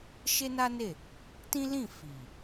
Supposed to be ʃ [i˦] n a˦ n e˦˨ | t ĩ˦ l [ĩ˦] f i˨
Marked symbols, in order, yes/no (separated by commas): no, no